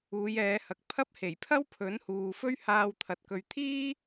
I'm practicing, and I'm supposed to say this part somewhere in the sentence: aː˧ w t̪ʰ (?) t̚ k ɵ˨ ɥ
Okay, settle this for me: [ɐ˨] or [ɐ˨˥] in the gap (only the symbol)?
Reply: ɐ˨